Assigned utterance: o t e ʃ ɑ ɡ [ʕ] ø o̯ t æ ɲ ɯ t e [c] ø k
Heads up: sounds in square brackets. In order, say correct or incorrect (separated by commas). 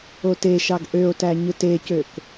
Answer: incorrect, correct